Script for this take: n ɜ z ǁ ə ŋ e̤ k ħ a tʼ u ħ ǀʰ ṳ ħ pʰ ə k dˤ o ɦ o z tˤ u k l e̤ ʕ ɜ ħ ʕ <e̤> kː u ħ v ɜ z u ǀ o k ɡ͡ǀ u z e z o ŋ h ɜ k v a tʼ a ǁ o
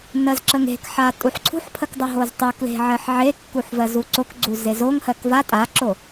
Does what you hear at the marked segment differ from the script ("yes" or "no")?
yes